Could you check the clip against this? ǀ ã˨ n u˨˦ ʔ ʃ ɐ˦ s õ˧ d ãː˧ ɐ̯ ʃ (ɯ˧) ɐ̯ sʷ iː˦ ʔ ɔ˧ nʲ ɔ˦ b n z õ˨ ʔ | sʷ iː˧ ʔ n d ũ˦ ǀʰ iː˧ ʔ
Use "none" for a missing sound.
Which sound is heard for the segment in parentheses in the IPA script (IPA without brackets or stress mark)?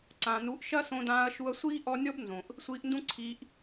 u˧